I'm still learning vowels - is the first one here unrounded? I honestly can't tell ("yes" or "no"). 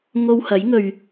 no